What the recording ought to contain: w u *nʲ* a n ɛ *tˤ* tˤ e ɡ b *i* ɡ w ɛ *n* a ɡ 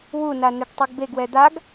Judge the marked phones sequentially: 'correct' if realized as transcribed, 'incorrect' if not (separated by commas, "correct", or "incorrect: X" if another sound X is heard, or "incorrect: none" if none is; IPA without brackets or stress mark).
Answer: incorrect: n, incorrect: ʈ, incorrect: e, incorrect: d̪